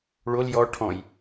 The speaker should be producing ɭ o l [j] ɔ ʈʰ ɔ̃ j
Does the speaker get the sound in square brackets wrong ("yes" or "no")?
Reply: no